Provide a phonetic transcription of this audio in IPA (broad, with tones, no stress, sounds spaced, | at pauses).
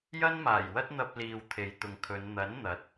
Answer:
j ɐ˥ n m aː˨˩ j w ɐ˥ t̚ n̪ ɐ˧ p̚ l iː˨ w t̪ʰ e˨˧ j t̪ ʊ˨ ŋ kʰ ɵ˨˧ n n̪ ɐ˨˥ n n̪ ɐ˨˥ t̚